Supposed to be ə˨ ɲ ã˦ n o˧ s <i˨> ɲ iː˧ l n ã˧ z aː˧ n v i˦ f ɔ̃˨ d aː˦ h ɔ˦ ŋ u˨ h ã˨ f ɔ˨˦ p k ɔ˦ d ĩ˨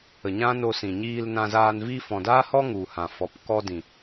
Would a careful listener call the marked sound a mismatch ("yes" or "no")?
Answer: yes